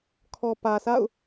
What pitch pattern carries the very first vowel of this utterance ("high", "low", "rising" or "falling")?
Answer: low